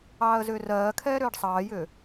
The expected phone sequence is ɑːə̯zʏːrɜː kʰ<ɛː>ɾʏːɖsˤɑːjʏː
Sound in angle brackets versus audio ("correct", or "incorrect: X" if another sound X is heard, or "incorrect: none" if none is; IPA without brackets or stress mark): correct